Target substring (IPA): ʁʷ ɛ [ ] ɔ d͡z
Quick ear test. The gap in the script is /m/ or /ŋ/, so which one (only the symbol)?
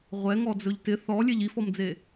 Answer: ŋ